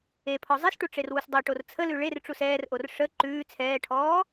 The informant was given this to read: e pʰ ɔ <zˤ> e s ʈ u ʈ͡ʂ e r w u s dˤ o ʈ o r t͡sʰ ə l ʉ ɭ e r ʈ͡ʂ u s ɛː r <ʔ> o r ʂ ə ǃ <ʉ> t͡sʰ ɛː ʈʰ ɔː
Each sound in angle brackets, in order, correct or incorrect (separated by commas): correct, correct, incorrect